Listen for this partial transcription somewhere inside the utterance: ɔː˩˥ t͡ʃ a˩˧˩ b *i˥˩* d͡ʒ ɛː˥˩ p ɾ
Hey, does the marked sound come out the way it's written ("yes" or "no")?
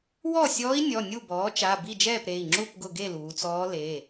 yes